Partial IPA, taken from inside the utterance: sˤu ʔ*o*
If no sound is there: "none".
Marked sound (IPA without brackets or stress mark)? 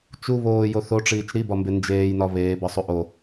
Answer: o